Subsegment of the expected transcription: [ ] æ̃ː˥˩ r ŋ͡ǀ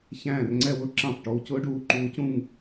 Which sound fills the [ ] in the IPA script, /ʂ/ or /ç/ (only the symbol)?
ç